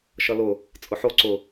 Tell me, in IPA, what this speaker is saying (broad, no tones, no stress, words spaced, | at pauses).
ʃʌlʊ | t͡sʼʊħo ǀʊ